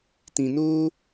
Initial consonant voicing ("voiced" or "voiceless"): voiceless